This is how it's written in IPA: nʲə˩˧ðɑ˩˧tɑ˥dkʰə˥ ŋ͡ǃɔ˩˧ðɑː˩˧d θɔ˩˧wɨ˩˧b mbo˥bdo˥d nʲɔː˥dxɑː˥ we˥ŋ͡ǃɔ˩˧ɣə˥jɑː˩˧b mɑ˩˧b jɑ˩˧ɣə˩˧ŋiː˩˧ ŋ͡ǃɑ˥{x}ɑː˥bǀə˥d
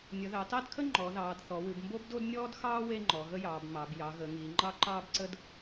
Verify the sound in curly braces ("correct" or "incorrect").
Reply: incorrect